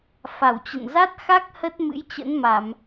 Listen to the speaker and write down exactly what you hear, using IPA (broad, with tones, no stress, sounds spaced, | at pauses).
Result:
f a˧˩ w t͡ɕ ə̰˧˨ n z a˦˥ t̚ x a˦˥ k̚ h ə˦˥ t̚ m ɨ̰˧˥ j t͡ɕ ə̰˧˥ n m a˧˩˨ m